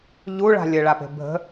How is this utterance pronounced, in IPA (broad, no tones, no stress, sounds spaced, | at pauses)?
ʎ u ɭ a̤ lʲ ə ɭ a p e̤ bʱ ə̤